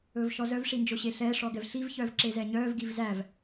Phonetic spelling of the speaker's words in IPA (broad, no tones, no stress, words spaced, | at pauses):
ɵːvʃɔzœv ʂind͡ʒoɕeɬɛː ʂɔɡɛvɬiv çœːvǁezɛɲœːv ɡivzæv